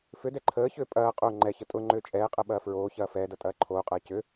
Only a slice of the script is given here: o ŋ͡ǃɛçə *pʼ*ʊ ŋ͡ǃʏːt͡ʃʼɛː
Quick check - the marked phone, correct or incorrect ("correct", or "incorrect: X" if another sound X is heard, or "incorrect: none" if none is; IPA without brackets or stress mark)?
incorrect: tʼ